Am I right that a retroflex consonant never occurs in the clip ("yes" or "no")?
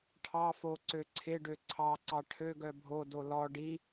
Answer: no